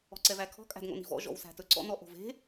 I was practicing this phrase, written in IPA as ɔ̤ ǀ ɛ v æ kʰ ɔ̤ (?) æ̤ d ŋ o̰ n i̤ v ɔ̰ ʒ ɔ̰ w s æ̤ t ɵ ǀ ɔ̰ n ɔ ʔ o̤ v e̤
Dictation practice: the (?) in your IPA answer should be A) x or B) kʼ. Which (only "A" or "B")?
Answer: B